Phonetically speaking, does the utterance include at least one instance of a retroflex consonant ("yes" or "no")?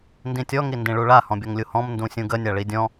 yes